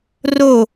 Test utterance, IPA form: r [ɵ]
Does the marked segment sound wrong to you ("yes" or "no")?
yes